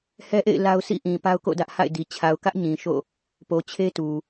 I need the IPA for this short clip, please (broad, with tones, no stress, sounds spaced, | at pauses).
h ɛ˦ ʔ ḛ˦˨ ɪ̯ l a˦ ʊ̯ sʰ ḭ˦˨ ʔ ĩ˨ p a˦ ʊ̯ k o̰˦˨ d ä˦ ʔ h a̰˦˨ ɪ̯ d i˨ t͡ɕʰ a˨ ʊ̯ k ä˦ ʔ ɲ ĩ˨ ʃ o̰˦˨ | p o˨ t͡ɕʰ e˦ t u˨